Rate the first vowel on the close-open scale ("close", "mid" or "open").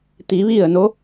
close